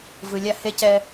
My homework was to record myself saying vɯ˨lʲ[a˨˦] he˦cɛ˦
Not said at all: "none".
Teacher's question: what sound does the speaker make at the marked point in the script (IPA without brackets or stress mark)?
a˦